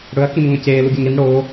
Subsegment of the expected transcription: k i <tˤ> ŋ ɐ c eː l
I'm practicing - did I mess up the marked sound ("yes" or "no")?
yes